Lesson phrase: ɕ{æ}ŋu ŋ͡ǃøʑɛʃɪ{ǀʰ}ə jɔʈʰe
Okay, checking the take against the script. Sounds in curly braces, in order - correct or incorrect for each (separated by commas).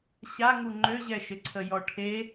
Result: incorrect, correct